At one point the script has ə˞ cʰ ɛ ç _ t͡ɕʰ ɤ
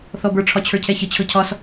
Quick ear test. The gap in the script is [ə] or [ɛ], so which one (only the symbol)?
ə